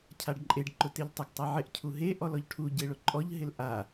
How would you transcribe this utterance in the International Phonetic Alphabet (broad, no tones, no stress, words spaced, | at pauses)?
cʰaɖǃʼeɖ ǃʊteʎtˤʊɡ tˤaʕɪʔ cʰuɦe ʔɔlɔʎʈʰu ɟeɭʊǃʼɔʎ ɦɪlʔa